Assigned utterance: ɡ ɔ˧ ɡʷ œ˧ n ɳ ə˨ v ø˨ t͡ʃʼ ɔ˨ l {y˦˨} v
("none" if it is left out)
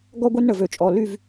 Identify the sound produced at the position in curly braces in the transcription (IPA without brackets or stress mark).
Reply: y˦˨